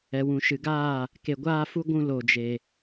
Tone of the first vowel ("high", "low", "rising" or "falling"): low